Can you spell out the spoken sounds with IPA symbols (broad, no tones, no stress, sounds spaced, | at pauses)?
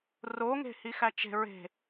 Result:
r o ŋ e̤ h i x æ t͡ʃ e̤ ɹ e̤